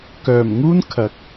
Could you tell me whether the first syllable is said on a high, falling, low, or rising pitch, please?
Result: low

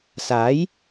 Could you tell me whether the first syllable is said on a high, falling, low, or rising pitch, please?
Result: rising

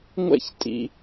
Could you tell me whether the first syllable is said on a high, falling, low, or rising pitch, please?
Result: falling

